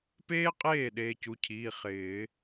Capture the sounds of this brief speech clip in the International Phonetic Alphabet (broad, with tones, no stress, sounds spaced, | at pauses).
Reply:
p eː˥ qʼ eː˥˩ ɗ eː˧ c u˩˧˩ cʰ iː˩˧˩ χ ɪː˨˩˦